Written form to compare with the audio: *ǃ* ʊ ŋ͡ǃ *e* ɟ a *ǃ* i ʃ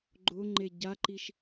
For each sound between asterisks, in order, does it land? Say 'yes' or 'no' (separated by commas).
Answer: no, yes, yes